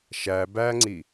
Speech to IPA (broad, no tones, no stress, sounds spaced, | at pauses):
ʃ æ b æ ŋ͡ǀ i